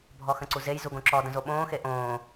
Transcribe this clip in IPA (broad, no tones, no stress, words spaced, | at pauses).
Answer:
bʱɔxə̃ǀuzej zuɡõǁɔ də̃zoɓõː xeʔõː